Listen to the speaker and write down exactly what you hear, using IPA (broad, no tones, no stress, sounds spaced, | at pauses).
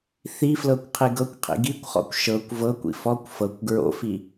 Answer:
θ i f l ɤ kʷ qʰ i ɡ ɤ kʷ qʰ ḭ ɡ i kʷ χ ɔ̰ kʷ ʃ ɤ kʷ v ɤ kʷ ḭ f ɔ kʷ f ɤ kʷ ɡ ɹ o̰ f i